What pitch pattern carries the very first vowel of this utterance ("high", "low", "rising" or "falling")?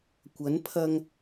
rising